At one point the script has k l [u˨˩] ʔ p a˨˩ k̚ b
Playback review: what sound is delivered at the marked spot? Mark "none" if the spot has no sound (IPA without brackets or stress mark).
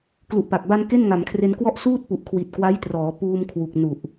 u˨˩